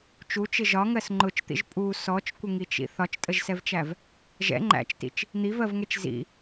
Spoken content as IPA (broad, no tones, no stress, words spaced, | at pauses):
t͡ʃut͡ʃɪ ʒɒŋɜs ŋ͡ǃʊt͡ʃt̪ḭʒ pʼu sɔt͡ʃkʷəŋit͡ʃḭ θɒt͡ʃtʼəʒsɛvt͡ʃæv | ʒɛ̰ ŋ͡ǃæ̰t͡ʃtḭt͡ʃ | n̪ivɜvŋɛt͡ʃ zḭ